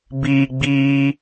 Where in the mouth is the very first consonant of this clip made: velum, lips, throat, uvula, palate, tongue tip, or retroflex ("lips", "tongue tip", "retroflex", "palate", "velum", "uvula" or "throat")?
lips